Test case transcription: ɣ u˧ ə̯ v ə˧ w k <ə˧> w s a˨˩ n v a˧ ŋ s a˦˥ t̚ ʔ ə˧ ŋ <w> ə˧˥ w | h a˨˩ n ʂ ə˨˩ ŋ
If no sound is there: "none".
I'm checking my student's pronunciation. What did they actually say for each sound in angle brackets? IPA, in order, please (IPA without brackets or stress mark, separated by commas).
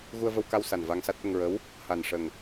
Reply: a˧, ɹ